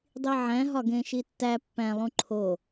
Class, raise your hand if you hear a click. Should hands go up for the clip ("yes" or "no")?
yes